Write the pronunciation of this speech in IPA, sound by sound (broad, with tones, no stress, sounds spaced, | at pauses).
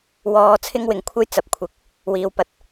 w ɔː˧ t͡sʰ ɪ˥ ŋ w ɪ˨ ŋ kʷʰ ɐ˥ j t͡s ɐ˨ p̚ kʷʰ ɪ˨ k̚ | w iː˨˧ w p ɐ˨ t̚